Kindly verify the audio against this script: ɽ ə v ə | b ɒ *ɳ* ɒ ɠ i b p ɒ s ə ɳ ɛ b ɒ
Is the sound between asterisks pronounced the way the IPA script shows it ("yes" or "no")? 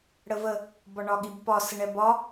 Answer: yes